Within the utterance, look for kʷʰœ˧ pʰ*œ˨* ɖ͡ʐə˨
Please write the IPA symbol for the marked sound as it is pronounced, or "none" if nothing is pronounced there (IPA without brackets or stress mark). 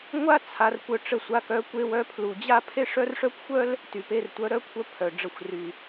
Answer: œ˨